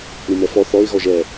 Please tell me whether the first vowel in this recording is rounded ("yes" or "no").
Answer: no